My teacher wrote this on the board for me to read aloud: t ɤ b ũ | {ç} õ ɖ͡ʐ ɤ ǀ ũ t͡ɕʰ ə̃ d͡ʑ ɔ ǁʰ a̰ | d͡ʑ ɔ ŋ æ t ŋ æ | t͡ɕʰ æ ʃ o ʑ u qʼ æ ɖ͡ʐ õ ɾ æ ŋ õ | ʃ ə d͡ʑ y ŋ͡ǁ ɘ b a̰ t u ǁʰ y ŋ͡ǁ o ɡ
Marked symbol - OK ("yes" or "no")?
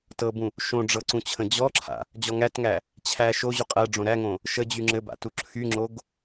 no